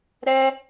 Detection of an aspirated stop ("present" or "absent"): absent